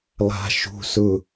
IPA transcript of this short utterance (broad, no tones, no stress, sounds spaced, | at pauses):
lˠ a̤ ʃ ṳ s ʊ